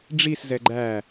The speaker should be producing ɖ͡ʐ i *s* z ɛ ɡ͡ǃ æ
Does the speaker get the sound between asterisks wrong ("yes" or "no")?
no